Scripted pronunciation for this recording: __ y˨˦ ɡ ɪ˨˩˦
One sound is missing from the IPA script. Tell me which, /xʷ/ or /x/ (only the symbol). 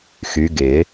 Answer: x